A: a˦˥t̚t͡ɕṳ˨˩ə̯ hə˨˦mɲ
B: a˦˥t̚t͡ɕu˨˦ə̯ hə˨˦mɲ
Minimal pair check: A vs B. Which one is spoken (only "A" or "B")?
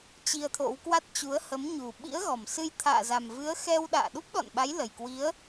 B